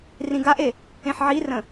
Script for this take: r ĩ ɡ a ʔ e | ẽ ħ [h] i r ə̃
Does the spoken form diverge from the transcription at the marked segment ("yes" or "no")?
yes